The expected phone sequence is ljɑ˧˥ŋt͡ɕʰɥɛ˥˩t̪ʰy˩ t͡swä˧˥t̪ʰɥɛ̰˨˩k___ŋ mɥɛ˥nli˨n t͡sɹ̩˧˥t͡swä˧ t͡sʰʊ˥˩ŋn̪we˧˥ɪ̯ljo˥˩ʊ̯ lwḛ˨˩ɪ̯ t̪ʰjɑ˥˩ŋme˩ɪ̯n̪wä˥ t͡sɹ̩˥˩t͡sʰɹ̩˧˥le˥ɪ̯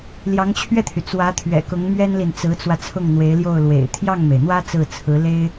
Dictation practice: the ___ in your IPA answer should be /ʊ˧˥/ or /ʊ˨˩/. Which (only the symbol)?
ʊ˧˥